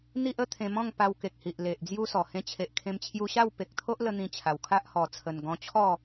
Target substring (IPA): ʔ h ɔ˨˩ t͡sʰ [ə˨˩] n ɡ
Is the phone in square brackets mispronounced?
no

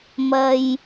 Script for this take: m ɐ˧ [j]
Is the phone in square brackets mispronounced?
no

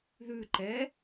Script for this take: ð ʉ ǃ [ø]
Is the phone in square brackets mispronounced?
yes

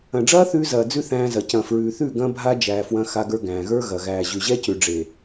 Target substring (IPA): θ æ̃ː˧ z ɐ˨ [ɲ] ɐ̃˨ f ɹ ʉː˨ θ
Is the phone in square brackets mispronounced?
yes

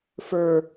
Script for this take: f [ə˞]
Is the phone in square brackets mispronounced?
no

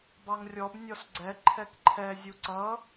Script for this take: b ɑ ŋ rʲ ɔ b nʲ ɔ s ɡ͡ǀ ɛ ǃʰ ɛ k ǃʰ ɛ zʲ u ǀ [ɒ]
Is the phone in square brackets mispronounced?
yes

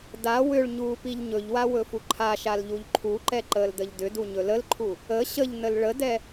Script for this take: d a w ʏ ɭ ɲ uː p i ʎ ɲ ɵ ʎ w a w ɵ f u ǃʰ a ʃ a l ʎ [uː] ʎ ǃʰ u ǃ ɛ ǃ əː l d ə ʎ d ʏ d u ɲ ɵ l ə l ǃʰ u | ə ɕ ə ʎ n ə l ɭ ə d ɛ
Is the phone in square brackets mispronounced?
yes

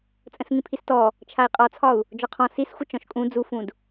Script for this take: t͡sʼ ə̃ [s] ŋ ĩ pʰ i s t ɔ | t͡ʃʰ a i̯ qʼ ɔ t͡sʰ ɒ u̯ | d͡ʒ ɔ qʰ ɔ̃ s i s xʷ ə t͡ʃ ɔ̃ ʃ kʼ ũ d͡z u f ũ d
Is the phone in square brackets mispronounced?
no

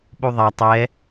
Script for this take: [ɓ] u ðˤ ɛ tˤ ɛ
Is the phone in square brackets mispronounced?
no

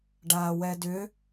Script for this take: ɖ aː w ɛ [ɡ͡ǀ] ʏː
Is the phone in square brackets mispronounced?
yes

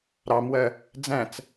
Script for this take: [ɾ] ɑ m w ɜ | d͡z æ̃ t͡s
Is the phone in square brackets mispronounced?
no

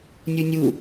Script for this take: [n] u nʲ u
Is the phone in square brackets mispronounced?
yes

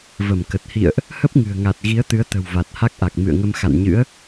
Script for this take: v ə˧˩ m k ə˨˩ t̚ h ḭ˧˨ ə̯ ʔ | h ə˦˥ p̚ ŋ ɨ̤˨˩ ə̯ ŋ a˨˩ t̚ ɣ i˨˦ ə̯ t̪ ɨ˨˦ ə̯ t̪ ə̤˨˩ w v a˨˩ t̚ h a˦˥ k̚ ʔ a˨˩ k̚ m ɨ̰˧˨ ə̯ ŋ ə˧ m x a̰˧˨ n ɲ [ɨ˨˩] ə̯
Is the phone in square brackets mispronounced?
yes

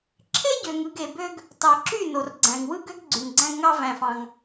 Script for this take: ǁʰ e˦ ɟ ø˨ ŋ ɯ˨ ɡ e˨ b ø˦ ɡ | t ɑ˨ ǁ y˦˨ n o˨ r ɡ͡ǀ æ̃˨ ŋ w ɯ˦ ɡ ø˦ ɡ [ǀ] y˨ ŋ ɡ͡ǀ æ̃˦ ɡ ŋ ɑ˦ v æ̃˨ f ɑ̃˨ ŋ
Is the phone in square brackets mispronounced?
yes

